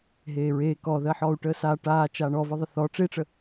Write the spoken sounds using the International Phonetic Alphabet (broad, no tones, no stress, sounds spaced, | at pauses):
ɦ eː ɹ eː k ɔ ð ɜ ħ ɔ u̯ ʈ əː s a ʈ aː t͡ʃ aː ɳ ɔ v ə ðˤ ə θ ɔ ʈ͡ʂ e ʈ͡ʂ ə